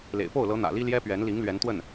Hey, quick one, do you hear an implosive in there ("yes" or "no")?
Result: no